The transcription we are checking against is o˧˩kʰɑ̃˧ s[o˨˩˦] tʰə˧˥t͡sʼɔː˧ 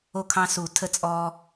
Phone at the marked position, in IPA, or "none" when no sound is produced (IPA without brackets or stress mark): u˨˩˦